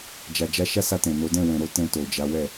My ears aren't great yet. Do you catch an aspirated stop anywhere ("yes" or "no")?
no